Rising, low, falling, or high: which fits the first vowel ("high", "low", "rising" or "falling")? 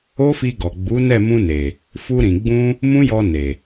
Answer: high